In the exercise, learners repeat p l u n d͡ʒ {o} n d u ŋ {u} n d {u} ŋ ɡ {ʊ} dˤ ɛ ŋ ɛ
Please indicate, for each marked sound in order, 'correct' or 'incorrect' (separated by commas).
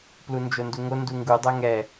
correct, incorrect, correct, incorrect